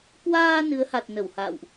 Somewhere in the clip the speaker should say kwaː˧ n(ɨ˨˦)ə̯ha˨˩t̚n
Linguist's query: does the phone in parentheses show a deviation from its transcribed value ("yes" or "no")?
no